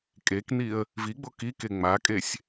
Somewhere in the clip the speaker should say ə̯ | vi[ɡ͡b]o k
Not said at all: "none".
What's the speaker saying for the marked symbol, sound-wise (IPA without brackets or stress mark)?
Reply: ɡ͡b